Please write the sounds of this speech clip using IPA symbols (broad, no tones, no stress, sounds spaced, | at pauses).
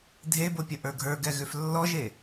dʱ e b o pʲ ə ʔ ə˞ ɡʱ ə˞ ɡ ɛ ɣ ʏ f lː ɔ ʒ e